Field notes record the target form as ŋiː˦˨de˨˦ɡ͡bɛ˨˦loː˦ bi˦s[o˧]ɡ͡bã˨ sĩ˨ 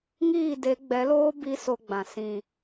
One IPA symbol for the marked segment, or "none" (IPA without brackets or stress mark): o˧